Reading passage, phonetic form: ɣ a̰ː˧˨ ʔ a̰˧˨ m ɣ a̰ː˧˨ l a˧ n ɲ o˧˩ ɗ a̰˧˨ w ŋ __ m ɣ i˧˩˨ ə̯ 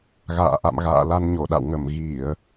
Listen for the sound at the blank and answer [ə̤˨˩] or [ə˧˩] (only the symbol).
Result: ə˧˩